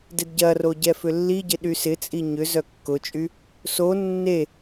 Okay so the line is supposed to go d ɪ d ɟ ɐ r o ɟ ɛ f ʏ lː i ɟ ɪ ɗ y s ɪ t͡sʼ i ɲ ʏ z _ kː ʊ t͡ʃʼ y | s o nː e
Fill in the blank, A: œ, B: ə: A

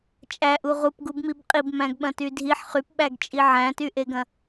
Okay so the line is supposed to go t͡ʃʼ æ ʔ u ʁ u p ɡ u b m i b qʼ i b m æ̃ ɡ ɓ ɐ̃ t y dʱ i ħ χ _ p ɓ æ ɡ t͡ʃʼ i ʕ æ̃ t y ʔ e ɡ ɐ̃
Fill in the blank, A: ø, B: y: B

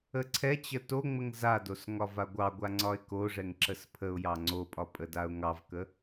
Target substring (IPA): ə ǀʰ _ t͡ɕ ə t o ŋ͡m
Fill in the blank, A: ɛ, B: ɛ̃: A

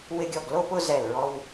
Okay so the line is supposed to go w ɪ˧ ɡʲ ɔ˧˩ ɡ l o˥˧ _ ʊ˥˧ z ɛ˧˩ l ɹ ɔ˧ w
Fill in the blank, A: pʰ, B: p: B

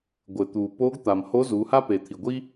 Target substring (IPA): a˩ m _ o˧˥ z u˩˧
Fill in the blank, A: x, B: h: B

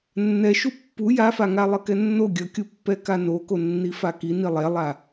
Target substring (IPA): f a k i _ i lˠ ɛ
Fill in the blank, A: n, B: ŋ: A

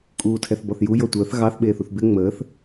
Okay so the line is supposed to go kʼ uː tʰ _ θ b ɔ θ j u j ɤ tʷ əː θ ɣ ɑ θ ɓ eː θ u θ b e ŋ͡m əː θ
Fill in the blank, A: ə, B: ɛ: B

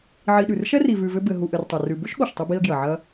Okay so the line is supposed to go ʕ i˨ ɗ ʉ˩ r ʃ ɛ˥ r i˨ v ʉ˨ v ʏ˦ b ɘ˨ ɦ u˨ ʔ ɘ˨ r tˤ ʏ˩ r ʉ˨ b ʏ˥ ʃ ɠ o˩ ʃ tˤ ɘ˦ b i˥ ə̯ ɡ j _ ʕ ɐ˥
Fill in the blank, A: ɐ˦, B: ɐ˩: B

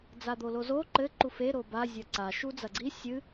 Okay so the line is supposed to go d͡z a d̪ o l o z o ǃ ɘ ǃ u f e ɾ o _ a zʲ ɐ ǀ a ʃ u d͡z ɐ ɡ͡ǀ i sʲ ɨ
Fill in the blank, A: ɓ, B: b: B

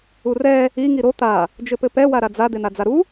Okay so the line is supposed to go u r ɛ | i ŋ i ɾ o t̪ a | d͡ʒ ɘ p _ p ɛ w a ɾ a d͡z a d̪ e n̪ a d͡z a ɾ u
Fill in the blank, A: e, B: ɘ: B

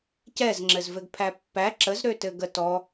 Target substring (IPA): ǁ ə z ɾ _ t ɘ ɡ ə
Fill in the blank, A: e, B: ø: B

